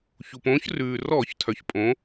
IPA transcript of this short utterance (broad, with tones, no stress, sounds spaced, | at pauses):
ç u˩ p õː˨˥ ç r ʉː˩ r ɔː˧˩˧ ç tʰ œ˩ ç pʼ õ˨˥